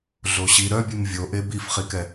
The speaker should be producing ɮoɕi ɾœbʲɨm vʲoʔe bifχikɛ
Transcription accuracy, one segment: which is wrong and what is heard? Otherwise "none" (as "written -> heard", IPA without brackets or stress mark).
none